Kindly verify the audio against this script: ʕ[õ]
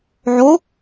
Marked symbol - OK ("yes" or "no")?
no